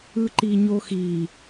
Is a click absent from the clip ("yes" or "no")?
no